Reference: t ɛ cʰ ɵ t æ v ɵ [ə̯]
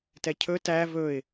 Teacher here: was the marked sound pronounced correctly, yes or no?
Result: no